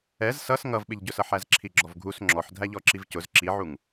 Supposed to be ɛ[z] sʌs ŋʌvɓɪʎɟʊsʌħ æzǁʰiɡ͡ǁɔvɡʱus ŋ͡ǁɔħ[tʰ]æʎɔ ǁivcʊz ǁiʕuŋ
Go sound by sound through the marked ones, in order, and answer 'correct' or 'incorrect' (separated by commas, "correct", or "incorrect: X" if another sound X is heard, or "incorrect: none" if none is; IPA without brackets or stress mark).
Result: correct, incorrect: dʱ